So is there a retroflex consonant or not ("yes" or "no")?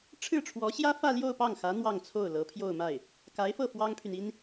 yes